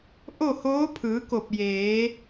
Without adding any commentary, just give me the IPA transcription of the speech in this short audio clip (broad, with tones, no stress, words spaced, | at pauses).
ʔo˥˨hoː˧˥ pʰɯː˩˧ko˧˩p̚ jeː˩˧